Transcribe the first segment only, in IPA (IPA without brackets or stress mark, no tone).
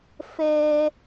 f